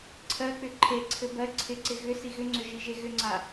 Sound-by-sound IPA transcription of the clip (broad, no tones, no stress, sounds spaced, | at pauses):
ǀʰ ɜ k͡p ʏ ǃʰ e ǀʰ ɘ b ɜ ǀʰ ɪ ǀ ɪ ɣ ʏ s i ɣ ʏ ŋ͡ǀ ʏ ʒ i ʒ e ɣ ʏ ŋ͡ǀ a